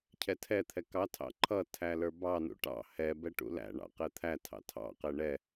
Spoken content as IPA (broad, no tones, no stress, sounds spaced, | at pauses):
cʰ ɛ tʰ ɛ t̪ʰ ɛ k ɑ tʰ ɑ̰ ǃʰ ʌ tʰ æ l ə˞ b ɑ n ṵ ʈ ɑ̰ h ɛ b ɛ ʈ ṵ l æ̰ ɳ ɑ̰ q ɛ t̪ʰ æ tʰ ɑ̰ tʰ ɑ̰ q ɛ ɳ ɛ